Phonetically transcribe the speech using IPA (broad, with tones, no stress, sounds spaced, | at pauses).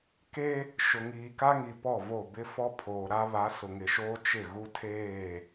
k e˦ | ʃ ʊ˨ ŋ iː˨ k a˦ ŋ i˨ p ɔ˦˨ v o˦˨ b ɪ˦ f ɔ˦ pʰ oː˨ ɾ a˦ β a˨˦ s ʊ˨ ŋ ɪ˨ ʃ oː˦ t͡ʃ ɪ˦˨ ɣ u˦ tʰ eː˦˨